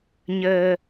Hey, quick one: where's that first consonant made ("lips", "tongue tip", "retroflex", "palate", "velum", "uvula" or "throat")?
palate